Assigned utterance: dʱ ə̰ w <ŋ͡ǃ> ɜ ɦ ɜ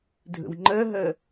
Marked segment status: correct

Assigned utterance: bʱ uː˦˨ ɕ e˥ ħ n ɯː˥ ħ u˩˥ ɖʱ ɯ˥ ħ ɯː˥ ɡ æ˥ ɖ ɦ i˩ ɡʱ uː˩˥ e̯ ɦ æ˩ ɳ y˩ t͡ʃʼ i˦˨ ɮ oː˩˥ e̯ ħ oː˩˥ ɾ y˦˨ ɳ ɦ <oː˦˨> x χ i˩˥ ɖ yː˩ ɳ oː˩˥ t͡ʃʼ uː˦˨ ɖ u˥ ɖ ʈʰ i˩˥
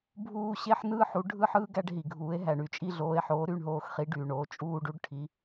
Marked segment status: correct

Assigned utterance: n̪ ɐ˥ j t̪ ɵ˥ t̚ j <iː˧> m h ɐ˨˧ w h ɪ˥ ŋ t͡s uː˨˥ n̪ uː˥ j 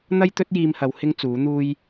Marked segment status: correct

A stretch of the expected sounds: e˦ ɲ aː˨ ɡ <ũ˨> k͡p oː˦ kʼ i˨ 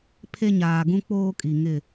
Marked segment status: incorrect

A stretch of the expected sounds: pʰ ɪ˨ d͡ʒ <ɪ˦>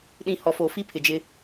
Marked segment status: correct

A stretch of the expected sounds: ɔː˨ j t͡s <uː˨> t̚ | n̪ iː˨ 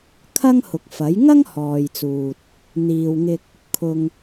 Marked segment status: correct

